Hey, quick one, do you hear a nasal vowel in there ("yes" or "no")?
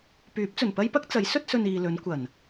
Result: no